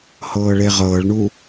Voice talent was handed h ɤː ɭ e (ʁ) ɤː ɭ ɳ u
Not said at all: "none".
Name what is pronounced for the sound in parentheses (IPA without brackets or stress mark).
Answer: ʁ